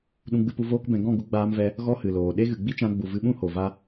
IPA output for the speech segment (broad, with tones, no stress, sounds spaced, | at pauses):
ɗ ũ˧ ɡ͡b ɨ˧ p u˧ v oː˦ k b ɛ̃˧ ɡ ɔ̃˦˨ ɡ u˧ ɡ͡b aː˧ m v ɛ˧ | ɣ ɔ˦ h ɨ˨ l oː˨ ɗ e˦ ɣ ɨ˨ ɡ͡b i˦ t͡ʃ ã˧ ɡ͡b u˨ v ɨ˧ ɓ ũ˦ h o˨ v a˦